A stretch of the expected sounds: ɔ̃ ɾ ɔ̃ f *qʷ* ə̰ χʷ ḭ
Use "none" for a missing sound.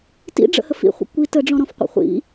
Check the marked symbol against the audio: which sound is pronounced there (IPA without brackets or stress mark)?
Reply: qʷ